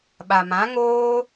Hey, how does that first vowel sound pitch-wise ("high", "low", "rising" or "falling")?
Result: low